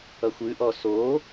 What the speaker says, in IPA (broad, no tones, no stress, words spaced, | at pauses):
ʌxʷʉʔɔ so